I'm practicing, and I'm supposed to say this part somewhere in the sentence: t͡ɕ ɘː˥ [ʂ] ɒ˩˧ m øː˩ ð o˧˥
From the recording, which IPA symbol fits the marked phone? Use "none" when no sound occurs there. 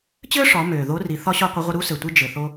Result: ʂ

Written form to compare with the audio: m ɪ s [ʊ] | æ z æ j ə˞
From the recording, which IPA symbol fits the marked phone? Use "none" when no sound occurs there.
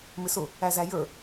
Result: ʊ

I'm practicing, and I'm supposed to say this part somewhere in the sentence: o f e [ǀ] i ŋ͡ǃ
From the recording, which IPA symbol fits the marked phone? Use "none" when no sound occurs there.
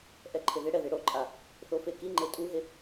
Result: k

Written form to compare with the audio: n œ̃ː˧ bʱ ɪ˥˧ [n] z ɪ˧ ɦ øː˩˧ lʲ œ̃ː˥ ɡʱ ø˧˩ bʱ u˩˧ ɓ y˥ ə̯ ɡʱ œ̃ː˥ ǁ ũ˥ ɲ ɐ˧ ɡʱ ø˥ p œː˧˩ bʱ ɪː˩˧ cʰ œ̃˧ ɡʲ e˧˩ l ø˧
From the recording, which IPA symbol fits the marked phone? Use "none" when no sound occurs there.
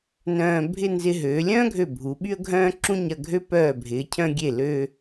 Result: n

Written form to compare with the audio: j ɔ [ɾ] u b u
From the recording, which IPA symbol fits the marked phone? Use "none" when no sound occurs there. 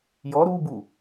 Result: ɾ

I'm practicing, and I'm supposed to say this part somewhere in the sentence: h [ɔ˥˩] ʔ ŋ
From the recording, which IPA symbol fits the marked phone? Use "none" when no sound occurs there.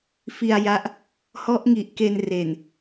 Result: ɔ˦˥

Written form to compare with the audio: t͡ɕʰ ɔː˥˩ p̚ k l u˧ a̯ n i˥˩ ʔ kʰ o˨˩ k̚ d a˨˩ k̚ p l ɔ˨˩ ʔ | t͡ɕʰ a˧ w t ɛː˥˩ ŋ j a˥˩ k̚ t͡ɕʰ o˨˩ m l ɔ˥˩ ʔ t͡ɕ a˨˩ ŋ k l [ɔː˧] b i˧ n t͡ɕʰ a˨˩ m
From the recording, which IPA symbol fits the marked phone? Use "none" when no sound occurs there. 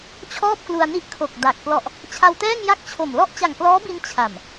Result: ɔː˦˥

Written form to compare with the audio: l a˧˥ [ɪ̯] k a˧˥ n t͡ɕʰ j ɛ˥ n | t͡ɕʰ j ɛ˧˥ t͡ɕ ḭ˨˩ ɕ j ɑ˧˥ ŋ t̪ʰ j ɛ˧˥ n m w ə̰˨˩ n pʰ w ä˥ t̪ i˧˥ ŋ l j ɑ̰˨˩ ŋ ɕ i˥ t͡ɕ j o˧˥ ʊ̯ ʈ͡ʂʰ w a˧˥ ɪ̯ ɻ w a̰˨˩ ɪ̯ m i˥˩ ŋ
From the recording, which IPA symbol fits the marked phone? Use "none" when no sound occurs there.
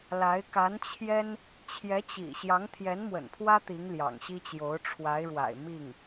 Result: ɪ̯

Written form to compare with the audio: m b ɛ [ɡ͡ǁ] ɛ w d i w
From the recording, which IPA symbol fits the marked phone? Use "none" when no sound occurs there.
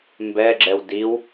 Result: ɡ͡ǁ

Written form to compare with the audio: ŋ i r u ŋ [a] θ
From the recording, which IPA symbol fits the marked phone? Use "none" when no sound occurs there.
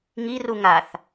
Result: a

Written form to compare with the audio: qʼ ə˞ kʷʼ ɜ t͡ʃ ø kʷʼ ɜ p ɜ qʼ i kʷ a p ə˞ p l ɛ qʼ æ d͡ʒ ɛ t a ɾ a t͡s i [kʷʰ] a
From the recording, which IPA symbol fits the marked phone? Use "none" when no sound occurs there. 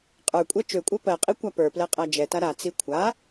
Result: kʷʰ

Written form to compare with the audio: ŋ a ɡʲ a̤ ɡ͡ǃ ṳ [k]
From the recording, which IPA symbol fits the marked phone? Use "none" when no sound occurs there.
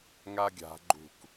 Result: k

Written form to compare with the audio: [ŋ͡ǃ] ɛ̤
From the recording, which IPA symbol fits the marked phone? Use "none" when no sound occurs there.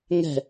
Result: ŋ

